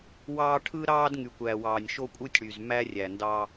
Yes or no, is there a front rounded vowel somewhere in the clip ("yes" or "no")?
yes